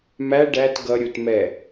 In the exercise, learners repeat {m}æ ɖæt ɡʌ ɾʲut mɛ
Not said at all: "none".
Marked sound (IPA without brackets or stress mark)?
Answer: m